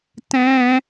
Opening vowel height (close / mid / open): mid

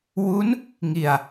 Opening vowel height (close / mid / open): close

